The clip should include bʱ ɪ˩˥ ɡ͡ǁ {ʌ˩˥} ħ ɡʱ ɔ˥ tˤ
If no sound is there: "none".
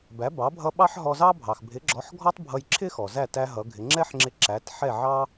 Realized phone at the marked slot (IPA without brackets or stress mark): ɔ˩˥